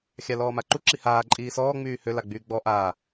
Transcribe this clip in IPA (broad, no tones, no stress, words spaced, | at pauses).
xʲalɔːmaǃu ǁihaː ǃʼiːsɔː ŋ͡myːhø laɡ͡byːɡ͡bɔ ʔaː